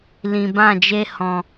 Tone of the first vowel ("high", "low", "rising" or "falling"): low